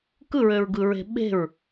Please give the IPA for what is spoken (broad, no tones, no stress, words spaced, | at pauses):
kɯɹøɹɡɯɹe̤ ɓe̤ɹ